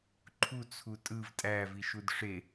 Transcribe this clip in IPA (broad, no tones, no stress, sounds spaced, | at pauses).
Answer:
ǃʰ u t͡sʰ u tʼ ɯ v tʼ æ v i ʃ u d ʂ e